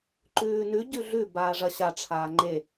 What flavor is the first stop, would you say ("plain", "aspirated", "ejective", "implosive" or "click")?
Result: click